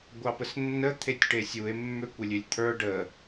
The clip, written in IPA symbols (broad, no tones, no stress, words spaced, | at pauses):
ɡʷɑpəsnːə t̪ʰetʲʈesʲue̯ mːøkʷəlʲølʲt̪ʰə˞ ɖə